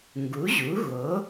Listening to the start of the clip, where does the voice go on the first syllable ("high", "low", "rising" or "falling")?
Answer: rising